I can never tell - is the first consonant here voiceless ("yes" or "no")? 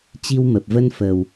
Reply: yes